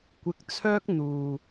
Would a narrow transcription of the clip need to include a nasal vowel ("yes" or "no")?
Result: no